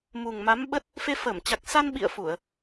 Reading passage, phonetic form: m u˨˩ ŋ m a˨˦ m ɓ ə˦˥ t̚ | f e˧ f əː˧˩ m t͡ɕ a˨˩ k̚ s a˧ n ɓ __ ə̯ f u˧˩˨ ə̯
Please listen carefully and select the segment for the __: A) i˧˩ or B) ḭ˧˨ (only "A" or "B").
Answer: B